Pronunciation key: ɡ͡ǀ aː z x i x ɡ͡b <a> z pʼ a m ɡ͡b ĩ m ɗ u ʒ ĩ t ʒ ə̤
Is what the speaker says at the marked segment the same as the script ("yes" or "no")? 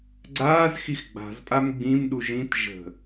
no